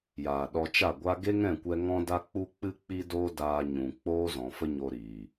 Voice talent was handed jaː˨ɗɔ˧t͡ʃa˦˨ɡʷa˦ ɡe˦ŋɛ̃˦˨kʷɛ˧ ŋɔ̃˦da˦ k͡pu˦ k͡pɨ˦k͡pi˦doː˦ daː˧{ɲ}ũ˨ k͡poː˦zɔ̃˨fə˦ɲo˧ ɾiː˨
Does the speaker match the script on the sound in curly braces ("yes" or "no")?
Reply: yes